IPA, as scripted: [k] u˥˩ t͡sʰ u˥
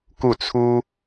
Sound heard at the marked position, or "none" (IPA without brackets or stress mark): k